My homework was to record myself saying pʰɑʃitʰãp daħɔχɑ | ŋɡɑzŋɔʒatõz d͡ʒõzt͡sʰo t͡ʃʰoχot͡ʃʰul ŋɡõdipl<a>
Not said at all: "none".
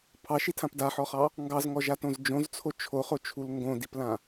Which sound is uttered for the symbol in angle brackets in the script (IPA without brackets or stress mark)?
ã